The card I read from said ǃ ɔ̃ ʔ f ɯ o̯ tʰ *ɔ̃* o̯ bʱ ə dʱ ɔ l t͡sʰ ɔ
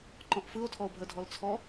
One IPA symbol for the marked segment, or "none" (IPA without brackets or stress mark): ɔ